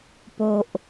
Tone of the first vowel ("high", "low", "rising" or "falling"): low